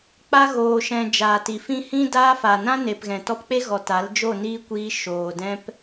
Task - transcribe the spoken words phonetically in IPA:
k͡p a˧ ɣ oː˨ ʃ ɛ̃˨ d͡ʒ aː˨ t i˨ f ĩ˧ h ĩ˦ d aː˦ f a˨ n ã˦ n e˨ p ɣ ɛ̃˨ t ɔ˧ p k͡p e˦ ɣ ɔ˨ t a˨˦ l d͡ʒ o˦˨ n iː˦ kʷ iː˧ ʃ oː˨ d ɛ̃˦ p

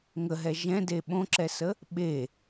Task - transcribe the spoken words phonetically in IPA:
ŋ ə ɦ ɛ ʒ ɛ̃ d e ɓ õ ǁ ɛ s ə | ɓ e

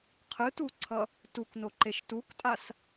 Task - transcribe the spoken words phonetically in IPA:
qʰ ɯ t u ǀʰ ʌ | t u k n o ǃ e ʃ t u k tʼ a s

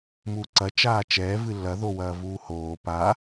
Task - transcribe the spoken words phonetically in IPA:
m uː ǀ ɐ t͡ʃ aː t͡ʃ ɛː v ɨ lː ɐ ð o w ɐː v uː h oː p a

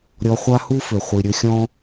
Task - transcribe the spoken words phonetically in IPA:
ɾʲ ɔ˧ χʷ a˦ h u˦ f ʏ˨ χʷ i˨ ɾʲ ɵ˧ xʲ ɔ̃˦

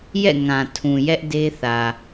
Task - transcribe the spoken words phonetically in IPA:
j ɛ̰˦˨ ŋ ã˨ tʰ ũ˨ j ɛ˦ ʔ d e˦ θ ä˨

